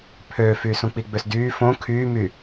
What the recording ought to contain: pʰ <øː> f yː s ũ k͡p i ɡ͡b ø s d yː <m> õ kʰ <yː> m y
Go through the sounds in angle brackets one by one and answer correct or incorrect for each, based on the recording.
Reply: correct, incorrect, correct

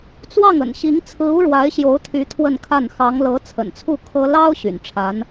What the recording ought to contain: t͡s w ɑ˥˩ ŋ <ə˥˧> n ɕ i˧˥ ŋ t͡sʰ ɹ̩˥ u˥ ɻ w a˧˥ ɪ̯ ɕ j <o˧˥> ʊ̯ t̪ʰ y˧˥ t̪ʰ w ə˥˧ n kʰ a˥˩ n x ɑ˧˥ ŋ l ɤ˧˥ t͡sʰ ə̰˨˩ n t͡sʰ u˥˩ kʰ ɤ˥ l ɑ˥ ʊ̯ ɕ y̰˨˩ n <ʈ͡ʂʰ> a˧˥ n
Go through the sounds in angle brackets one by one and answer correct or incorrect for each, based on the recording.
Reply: incorrect, correct, correct

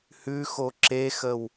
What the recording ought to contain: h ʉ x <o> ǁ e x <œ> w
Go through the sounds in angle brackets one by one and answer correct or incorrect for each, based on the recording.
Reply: correct, incorrect

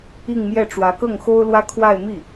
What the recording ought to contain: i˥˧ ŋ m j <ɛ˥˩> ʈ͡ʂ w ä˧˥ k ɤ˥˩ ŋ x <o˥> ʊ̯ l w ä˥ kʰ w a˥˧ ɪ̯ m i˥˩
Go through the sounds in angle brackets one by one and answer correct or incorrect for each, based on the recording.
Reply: correct, correct

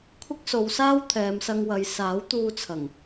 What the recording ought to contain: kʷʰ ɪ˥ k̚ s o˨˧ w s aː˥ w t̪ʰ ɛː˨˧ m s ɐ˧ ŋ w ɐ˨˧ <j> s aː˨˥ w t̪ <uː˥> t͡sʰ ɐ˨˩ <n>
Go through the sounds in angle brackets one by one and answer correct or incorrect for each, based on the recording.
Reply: correct, incorrect, incorrect

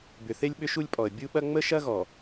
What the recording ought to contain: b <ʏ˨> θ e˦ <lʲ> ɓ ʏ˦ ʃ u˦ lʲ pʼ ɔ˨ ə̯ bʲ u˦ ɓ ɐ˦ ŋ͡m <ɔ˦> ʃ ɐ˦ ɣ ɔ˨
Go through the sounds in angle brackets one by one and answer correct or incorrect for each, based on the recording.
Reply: correct, correct, incorrect

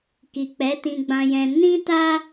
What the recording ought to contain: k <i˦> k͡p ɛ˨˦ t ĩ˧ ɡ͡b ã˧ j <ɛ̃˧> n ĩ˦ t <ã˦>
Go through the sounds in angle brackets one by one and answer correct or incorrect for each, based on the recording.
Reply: incorrect, correct, incorrect

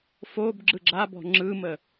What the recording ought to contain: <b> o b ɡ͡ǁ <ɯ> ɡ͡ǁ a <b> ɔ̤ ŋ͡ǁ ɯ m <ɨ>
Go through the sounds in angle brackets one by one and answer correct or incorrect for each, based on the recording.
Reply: incorrect, correct, correct, incorrect

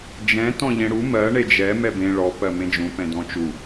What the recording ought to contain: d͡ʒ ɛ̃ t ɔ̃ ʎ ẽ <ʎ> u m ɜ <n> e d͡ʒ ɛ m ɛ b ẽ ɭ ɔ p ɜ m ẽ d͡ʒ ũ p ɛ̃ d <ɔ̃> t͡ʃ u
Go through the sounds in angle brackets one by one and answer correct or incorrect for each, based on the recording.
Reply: incorrect, incorrect, correct

